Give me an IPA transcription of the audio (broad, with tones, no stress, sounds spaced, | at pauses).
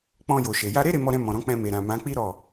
k͡p ɔ̃˧ j o˨ ʃ e˨ j a˧ ɾ e˦ ɾ e˧ m ɔ˧ ɾ ɛ̃˧ m ɔ̃˨ ɾ ɔ̃˨˦ k͡p ɛ̃˧ m e˨ ɾ ã˨ m ã˨˦ k͡p i˦ ɾ ɔ˦˨